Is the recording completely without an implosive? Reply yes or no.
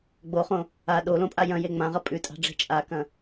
no